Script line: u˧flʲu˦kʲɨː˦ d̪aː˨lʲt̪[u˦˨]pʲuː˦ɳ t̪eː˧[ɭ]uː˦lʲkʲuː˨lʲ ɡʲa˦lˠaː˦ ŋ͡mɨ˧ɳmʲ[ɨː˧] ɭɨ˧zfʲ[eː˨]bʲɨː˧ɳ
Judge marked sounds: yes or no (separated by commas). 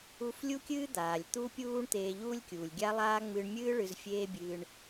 no, no, no, no